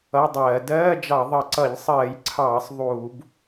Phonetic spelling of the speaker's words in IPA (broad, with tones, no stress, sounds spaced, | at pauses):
ʌ˧˥˧ dˤ ɜː˧˩˧ d ɜː˧˥˧ d͡ʒ ɑ˧˩˧ ðˤ ʌ˧˩˧ ǀ ʌ˧˩˧ ʎ sˤ ɜː˧˩˧ j ǀʰ ɑː˧˩˧ sˤ ðˤ uː˧˩˧ b